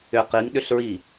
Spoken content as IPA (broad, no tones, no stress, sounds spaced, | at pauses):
ʏ q i ŋ ɗ ʏ ɬ ɹ i